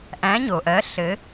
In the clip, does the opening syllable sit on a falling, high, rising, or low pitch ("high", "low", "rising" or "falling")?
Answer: rising